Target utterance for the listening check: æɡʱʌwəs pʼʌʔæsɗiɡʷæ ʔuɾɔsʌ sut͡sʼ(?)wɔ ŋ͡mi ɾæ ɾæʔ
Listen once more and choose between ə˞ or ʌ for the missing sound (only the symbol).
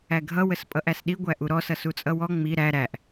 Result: ʌ